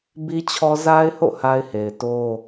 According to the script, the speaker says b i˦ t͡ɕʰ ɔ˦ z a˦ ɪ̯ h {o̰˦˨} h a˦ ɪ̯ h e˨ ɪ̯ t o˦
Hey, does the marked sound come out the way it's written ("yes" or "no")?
yes